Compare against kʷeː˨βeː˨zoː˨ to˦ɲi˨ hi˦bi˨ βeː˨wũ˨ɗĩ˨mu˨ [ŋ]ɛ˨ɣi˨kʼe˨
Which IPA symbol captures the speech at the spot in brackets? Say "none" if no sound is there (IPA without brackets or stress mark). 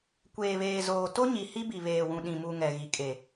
ŋ